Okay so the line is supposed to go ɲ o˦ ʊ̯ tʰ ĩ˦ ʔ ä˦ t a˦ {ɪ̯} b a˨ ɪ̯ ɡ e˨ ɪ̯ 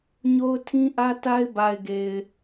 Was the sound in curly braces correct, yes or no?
yes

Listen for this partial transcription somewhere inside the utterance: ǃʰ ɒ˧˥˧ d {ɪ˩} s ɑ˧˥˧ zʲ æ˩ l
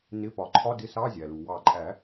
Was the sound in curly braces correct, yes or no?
no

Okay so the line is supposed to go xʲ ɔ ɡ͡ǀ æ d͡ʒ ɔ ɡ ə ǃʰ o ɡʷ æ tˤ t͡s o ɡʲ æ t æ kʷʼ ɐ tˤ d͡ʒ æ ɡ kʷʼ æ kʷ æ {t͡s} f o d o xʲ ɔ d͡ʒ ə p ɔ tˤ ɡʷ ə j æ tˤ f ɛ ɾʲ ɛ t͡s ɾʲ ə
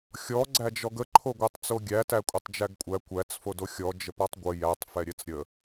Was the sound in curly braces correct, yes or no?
yes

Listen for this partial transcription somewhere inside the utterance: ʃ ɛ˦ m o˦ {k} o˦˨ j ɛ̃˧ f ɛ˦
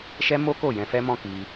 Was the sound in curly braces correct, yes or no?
yes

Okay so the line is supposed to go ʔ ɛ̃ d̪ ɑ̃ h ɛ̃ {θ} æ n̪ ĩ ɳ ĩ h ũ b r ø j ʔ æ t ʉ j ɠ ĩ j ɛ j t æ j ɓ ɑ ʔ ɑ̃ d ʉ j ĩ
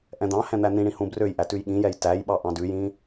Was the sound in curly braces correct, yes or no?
no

